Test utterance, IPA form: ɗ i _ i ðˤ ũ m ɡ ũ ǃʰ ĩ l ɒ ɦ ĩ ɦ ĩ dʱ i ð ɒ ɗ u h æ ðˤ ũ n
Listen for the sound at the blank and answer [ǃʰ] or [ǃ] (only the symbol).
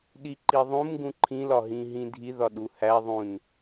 ǃ